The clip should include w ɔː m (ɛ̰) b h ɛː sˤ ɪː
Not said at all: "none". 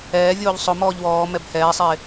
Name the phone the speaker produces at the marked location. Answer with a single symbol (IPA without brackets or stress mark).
ɛ